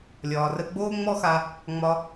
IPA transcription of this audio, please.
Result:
lʲ ɒː˩ r ə˧ ɡ͡b oː˥ ŋ͡m ɔ˥ x a˧ | ŋ͡m ɒ˧

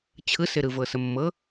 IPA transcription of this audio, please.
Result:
t͡ɕʰ ɯ s ɪ ɾ ɯ v ɤ s ə mː ɤ

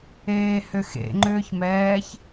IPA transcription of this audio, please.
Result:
eː h ʏ x ḛ ŋ͡ǃ ʏː ç m ɛː ç

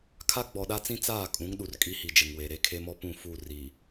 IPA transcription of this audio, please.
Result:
kʰ a˦ ɡ͡b ɔ˨ ɗ a˦ t͡s ĩ˦ t͡s aː˦˨ kʼ ũ˨˦ ŋ ɗ u˨ r kʼ i˦ h i˨ d͡ʒ ɪ˨ ŋ w e˨ ɾ e˦ kʰ e˦ m ɔ˦ p ũ˦˨ f u˦˨ r i˨

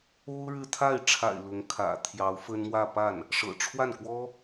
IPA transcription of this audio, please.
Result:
o˥ ʊ̯ ɻ ɻ̩˥˧ t̪ʰ a˥˩ ɪ̯ ʈ͡ʂʰ a̰˨˩ ɪ̯ l ʊ˧˥ ŋ kʰ ä̰˨˩ t̪ʰ j ɑ˧˥ ʊ̯ f ə˥ n m w ä˥˧ p a˥˩ n | ʂ ɤ̰˨˩ ʈ͡ʂʰ w a˥˩ n k w ɔ˥

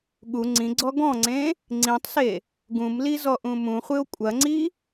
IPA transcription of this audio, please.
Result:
ɠ u ŋ͡ǀ ĩ ɡ͡ǀ ɔ ɡ ɔ̃ ŋ͡ǀ ẽ | ŋ͡ǀ ĩ tˤ s e | ɡ ũ m l i z ɔ ʔ ũ m ũ χʷ ɨ o̯ kʷʼ ɐ ŋ͡ǀ i

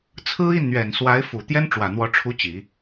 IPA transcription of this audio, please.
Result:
t͡sʰ ɹ̩˥ i˥˩ n n̪ ɥ ɛ˨˩ n s w a˧˥ ɪ̯ f u˨˩ t̪ j ɛ˥ n ʈ͡ʂ w ä˨˩ n̪ w ɔ˧˥ ʈ͡ʂʰ u˧˥ t͡ɕ i˨˩˦

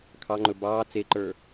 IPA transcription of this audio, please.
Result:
kʰ ɑ ŋ͡ǃ ɵ b ɑː t͡s e ǃ ə˞

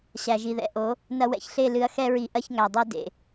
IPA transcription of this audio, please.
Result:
ɕ æ˨ ʒ i˨ ð ɛ̰˨ ʔ o˨˦ | n ɐ˧ w ɛ̰˨ ç ɬ e˦˨ l ɨ˨ ɐ̯ x ɛ˧ ɹ i˨ ʔ ɐ˦ ç ŋ æ˨ dˤ ɛ˦ d ḛ˨

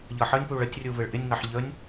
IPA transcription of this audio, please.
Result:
ʎ ʌ ħ ə nʲ p u ɭ ə tʲ rʲ u v ɪ ɭ ʔ ɪ nʲ ŋ ɑ ħ ʎ ə nʲ

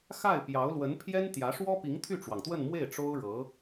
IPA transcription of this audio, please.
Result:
x a˥˩ ɪ̯ p j ɑ˧˥ ʊ̯ l w ə˧˥ n pʰ j ɛ˥ n t̪ j ä˧˥ ʂ w ɔ˥ p i˧˥ ŋ t̪ʰ y˥˩ ʈ͡ʂ w ɑ˩ ŋ t̪ w ə˥˧ n m w e˥˩ ɪ̯ ʈ͡ʂ o˥ ʊ̯ ɻ ɤ˧˥

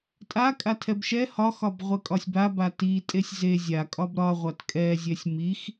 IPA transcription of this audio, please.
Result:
tʼ a kʼ a tʰ ɛ b ʃ ɛ h ɒ x ɒ b ʁʷ ɛ kʼ ɒ sʲ b a b a t i tʼ e sʲ z e zʲ a kʼ ɒ b ɾ ɒ ʁʷ a t kʼ ɛ zʲ ɛ sʲ m i x

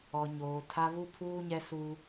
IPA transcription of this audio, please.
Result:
ɔ˨ ɲ oː˨ tʰ a˦ β u˦ pʰ uː˦ ɲ ɛ˦ s u˦

